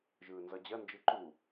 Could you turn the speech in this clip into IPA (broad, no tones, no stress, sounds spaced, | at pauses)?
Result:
ʒ ɯː n z ʌ d͡ʑ ɐ n d͡ʒ ɯ ǃ u